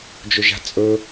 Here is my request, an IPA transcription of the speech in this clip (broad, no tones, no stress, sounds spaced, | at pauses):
d͡ʒ ɵ ʒ a̤ t͡sʼ ɵ